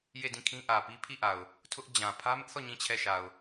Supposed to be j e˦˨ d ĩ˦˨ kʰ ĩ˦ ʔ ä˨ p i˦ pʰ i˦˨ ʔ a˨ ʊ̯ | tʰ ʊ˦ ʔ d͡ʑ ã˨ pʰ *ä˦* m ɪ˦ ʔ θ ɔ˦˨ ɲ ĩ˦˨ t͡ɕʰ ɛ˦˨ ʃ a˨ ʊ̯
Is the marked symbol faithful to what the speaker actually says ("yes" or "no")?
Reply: yes